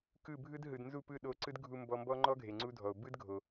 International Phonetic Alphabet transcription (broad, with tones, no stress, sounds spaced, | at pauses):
k ɯ˦˨ bʱ ɯ˦ d ɦ ɯ˨ d n z u˦˨ p ɯ˦˨ ɗ o˧ ǀ ɯ˦ d ɡʱ u˧ m b ɔ˧ m b ɔ˦ ŋ͡ǃ ɔ˦ ɡʱ e˨ ŋ͡ǀ u˦ dʱ ɔ˨ o̯ b ɯ˦ d ɡʱ o˨